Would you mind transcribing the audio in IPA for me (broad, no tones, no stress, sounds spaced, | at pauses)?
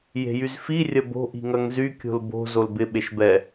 j e̤ j y z f i rʲ ɐ b o̤ ʔ i̤ ŋ ɐ ŋ z y kʲ o̤ l b o̤ z o l b ɪ ɓ e ʃ b ɛ